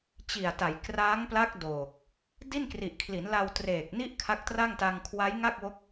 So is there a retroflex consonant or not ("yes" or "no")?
no